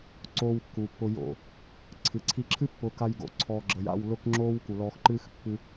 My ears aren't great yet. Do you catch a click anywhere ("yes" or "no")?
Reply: yes